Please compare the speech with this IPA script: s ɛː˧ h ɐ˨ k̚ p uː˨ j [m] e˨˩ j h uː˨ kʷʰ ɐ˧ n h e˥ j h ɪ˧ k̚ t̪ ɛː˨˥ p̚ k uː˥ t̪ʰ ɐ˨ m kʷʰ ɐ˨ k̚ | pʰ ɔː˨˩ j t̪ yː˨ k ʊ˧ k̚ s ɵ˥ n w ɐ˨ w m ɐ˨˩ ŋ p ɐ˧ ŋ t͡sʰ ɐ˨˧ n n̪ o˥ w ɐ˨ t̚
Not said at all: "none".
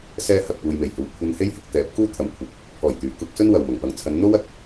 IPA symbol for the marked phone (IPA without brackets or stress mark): m